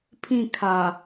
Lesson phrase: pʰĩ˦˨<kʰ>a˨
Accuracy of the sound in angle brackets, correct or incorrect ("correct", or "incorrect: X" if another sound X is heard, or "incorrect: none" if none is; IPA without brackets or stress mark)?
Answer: correct